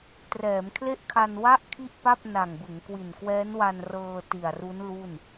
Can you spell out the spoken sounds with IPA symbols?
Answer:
t r ɛː˩˦ m kʰ l e˥˩ ʔ kʰ a˧ n w a˥˩ ʔ kʰ i˥˩ ʔ p a˥˩ p̚ n a˨˩ ŋ b ɯ˩˦ ŋ k w i˨˩ n k w ɛː˦˥ n w a˧ n r ɤː˧ t i˨˩ a̯ r u˦˥ n l u˥˩ n

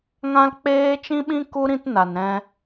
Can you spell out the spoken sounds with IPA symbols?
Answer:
ŋ ã˦ l k͡p eː˦ t͡ʃ ĩ˦ ɓ ĩ˦ k u˦ ɾ ĩ˦ t n a˨ n ɾ ɛ̃˧

